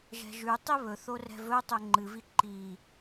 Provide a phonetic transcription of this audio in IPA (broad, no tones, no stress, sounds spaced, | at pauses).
ʒ ɛ̤ ʒ ʉ tˤ i β ɵ θ o r ɛ̤ v ɵ tˤ ɵ ŋ͡ǃ ɨ v i ǃ i